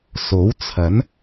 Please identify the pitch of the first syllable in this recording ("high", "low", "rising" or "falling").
rising